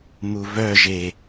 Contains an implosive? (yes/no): no